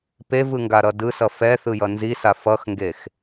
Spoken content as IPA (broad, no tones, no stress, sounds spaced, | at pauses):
p e v ɯ ŋ ɡ a ɾ ʌ d ɯ s ʌ f ɛ θ ɯ j ʌ n z i s a f ʌ x ŋ ɡ e x